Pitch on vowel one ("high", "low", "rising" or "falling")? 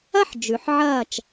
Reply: falling